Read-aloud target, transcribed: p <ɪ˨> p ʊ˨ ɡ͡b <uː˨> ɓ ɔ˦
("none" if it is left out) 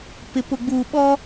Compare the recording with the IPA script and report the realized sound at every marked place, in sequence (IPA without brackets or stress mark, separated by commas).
ɪ˨, uː˨